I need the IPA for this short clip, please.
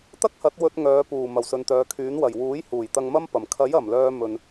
t̪ ɐ˥ k̚ h ɐ˨˥ t̚ w ɵ˧ t̚ ŋ œː˨˧ p uː˨˩ m ɐ˨˩ w s ɵ˨ n t̪ œː˨˧ kʰ yː˨˥ n w ɐ˨˩ j w uː˨˥ j h uː˨˩ j t̪ ɐ˧ ŋ m ɐ˥ m p ɐ˨˩ m kʰ ɐ˨˥ j ɐ˨˩ m l œː˧ m ɵ˨ n

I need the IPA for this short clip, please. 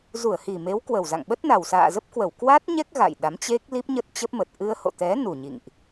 z u˧˩ ə̯ h i˨˩ m e˨˦ w k w ə˨˩ w z a̰˧˨ ŋ ɓ ə˦˥ t̚ n a˨˩ w s a̰ː˧˨ z ə˦˥ p̚ k w ə˧˩ w k w a˦˥ t̚ ɲ ɛ˦˥ k̚ ɣ a̰˧˨ j ɗ a˨˦ m t͡ɕ e˦˥ k̚ l i˦˥ p̚ ɲ ə˦˥ t̚ t͡ɕ ə˦˥ p̚ m ə˨˩ t̚ ʔ ɨ˧ ə̯ h o̰˧˨ t̪ ɛ˨˦ n u˨˩ ɲ ḭ˧˨ ŋ ʔ

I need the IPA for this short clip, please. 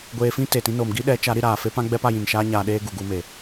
ɡʷ eː˧ f ĩ˦ t e˨ t ĩ˧ n oː˨ m ɡ i˦ ɗ ɛ˨˦ t͡ʃ a˨˦ ɾ i˧ ɾ aː˨ f e˦ p ã˦ ɡ͡b ɛ˦ p a˧ j ĩ˨ n ʃ aː˦ ɲ aː˧ ɗ eː˦ ɡ u˨ ɡ u˧ m e˨

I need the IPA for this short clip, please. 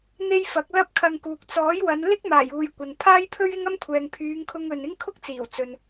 n̪ e˧ j f ɐ˨˥ k̚ l ɐ˥ p̚ kʰ ɐ˧ ŋ k uː˨ k̚ t͡s ɔː˨˥ j w ɐ˨˧ n l ɪ˥ k̚ m aː˨˩ j uː˨ j kʷ ɐ˨ n pʰ aː˥ j pʰ ɵ˥ ɥ ɪ˥ ŋ ɐ˥ m kʷʰ ɛː˨ ŋ pʰ yː˨˧ ŋ kʰ ʊ˧ ŋ ɵ˨ n ɪ˥ ŋ kʰ ʊ˥ k̚ t͡s iː˨˩ w t͡s ɵ˨ n

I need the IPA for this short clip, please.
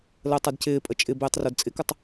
l əː tˤ ɛ d c ɪː pʼ ə t͡ʃʼ ɪ b ɪː tˤ r o d t͡sʼ ɪ k ɨ tˤ

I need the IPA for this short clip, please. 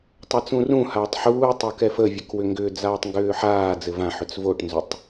tˤ a t͡s ũ r ũ h aː tˤ ħ uː tˤ o k ɛ f ə vʲ ɘ k w ʏ ŋ ɡ ʏː d͡z aː tˤ ŋ ɡ ʏː ħ aː d͡z ɘ v ã ħ ʏ t͡s v o ʈ n z ʏ tˤ

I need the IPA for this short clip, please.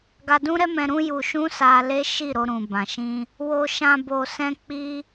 ɡ a˧ d ũ˦ ɾ ɛ˦ m ɛ̃˧ ɾ ũ˦ j u˧ ʃ ũ˦ s a˧ l e˦ ʃ i˦˨ ɾ o˧ ɾ ũ˨ b ã˨ ʃ ĩ˧ | w o˧ ʃ ã˧ b o˧ s ɛ̃˦ k͡p i˦

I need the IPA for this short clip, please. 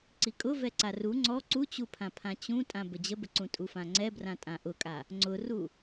ǀ i kʼ ʊ v ɛ ǀ a r u ŋ͡ǀ ɔ ǀ u t͡ɕ u pʰ ã pʰ ã t͡ɕ ũ tʼ ã b ə d͡ʑ ə b ə ǀ ũ tʼ u f ã ŋ͡ǀ ɛ b r ã tʼ ã ʔ ʊ kʼ a | ŋ͡ǀ ʊ r u

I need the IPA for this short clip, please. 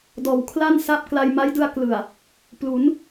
d ɔː˩˦ w kʰ l a˥˩ n s a˥˩ p̚ k l a˧ j m a˦˥ j d ɯ˧ a̯ k l ɯ˨˩ a̯ | p l u˩˦ n

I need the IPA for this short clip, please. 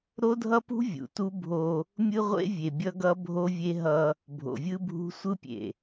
ɾ o˦ dʱ ʌ˦ p ṳ˦ vʲ ṵ˨ t u˦ bʱ o˦ | mʲ ɯ˦ ʁʷ ḛ˦ vʲ e˨ bʲ ʌ˦ ɡ ʌ˦ bʱ o˦ vʲ e˦ ɦ ʌ˦ | bʱ o̰˨ vʲ ɯ˦ bʱ ṳ˦ sʷ ɯ˦ pʲ ḛ˨

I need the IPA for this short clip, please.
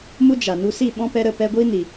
m u˦ d͡ʒ a˨ n u˧ s i˦˨ ɓ ɔ̃˦ p ɛ˧ ɾ ə˦˨ p ɛ˧ ɡʷ iː˦ n i˨

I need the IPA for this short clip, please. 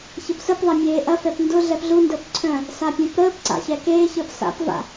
ç ə p s ə p ðˤ ɐ mʲ eː ʔ ɐ f ɛ p n d ʊ ɮ ɛ p ɮ u n d əː p ǀʰ œ̃ | s a pʲ œ̃ p ɾ əː p ǀ a̰ ç ɛ k eː ç əː p s a̰ p v a̰

